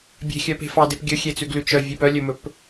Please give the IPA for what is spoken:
bʲ e̤ xʲ œ p e̤ f ɑ d e p ɡʲ ɵ xʲ e t͡s ʉ ɡ l ʉ t͡ʃ œ vʲ e p œ lʲ ɵ m ɵ p

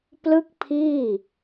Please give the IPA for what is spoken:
p l ɯ˥˩ k̚ pʰ iː˥˩

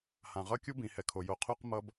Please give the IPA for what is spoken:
h ã˨ ʁ ʌ˦ kʲ u˦ b ĩ˨ h ɛ˨ kʰ o˨ j o˦ qʰ u˦ q m ʌ˦ b

